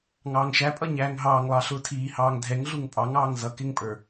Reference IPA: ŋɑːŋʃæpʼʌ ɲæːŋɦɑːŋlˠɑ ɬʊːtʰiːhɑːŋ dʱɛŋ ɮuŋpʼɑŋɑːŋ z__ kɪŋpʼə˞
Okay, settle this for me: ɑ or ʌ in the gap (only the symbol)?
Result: ʌ